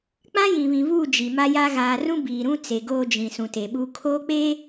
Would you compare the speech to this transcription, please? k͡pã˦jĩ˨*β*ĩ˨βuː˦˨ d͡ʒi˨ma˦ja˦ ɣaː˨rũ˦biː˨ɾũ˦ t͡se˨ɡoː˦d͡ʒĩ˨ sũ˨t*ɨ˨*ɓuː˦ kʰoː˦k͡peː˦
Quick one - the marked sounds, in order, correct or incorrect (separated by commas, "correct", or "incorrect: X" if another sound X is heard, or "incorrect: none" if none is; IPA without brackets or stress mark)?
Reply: correct, incorrect: e˨